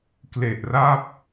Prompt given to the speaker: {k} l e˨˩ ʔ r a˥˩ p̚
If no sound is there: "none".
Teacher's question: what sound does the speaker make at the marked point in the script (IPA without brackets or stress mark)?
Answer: k